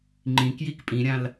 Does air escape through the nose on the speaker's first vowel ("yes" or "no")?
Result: yes